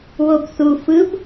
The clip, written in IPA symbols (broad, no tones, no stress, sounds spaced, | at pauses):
w o b θ u f ɯ b